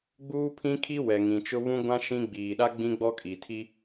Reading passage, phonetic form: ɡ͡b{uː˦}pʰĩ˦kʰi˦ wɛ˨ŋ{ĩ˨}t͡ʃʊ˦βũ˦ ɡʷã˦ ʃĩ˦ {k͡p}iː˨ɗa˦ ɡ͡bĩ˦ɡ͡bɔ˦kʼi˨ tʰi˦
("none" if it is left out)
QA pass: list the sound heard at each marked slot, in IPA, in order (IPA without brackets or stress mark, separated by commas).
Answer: uː˦, ĩ˨, ɡ͡b